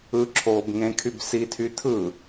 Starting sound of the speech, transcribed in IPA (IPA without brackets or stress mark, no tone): ɯ